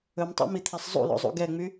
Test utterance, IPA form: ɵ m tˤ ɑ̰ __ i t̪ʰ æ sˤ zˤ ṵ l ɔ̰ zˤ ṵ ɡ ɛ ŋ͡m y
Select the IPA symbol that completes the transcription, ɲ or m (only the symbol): m